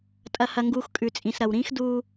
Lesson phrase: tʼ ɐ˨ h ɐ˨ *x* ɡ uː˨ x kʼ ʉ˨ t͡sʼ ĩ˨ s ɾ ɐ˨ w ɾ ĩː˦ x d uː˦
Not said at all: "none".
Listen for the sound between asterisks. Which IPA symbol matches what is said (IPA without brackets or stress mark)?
ŋ